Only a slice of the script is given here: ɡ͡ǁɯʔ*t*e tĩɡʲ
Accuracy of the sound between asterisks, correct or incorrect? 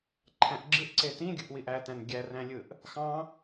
incorrect